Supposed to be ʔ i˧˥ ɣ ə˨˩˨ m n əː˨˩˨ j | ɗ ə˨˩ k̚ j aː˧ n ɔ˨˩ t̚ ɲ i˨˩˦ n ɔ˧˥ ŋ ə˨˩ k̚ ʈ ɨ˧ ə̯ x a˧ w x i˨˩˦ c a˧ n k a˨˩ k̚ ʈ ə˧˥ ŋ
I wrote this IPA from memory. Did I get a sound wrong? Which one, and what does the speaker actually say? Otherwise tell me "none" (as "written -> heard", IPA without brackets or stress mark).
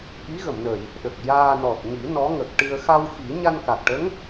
c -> ɲ